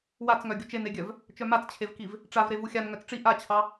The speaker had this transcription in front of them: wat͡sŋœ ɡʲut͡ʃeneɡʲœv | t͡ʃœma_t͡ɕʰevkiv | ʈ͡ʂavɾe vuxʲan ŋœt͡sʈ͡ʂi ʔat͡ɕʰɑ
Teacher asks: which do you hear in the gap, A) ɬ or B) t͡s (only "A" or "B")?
B